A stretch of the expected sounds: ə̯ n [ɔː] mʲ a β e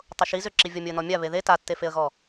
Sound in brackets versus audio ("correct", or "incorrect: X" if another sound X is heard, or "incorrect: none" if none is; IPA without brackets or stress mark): incorrect: ɔ